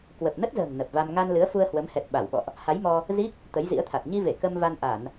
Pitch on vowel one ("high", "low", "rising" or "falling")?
low